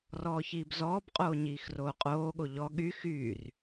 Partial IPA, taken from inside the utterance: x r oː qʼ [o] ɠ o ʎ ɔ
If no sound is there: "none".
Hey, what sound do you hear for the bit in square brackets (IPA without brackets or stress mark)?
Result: oː